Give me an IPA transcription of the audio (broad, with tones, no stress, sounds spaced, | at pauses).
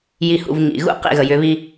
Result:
j i˨ h ṵ˨ v ŋ ḭ˨ ɣ ṵ˦ q ḭ˦˨ ɣ ə˨ j ʏ˨˦ β i˦